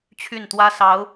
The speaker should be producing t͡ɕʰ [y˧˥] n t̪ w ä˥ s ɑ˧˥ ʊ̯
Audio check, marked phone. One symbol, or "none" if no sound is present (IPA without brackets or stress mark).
y˥˩